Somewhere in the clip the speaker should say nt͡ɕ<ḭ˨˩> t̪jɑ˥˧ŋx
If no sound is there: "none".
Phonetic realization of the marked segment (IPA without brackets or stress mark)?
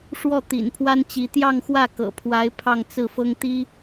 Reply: i˧˥